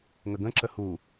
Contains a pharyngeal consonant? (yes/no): no